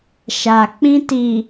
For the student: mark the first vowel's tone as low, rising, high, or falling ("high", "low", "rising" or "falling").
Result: low